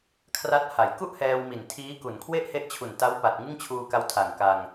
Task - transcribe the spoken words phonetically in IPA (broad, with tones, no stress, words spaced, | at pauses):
kʰra˦˥t̚ha˩˦j ku˥˩ʔhɛː˧wmi˨˩n tʰiː˦˥ku˨˩n kʰwe˥˩ʔhe˦˥ʔt͡ɕʰu˨˩n ta˦˥wpa˨˩t̚ ŋɯ˥˩ŋt͡ɕʰuː˧ka˧w tʰa˨˩ŋka˧ŋ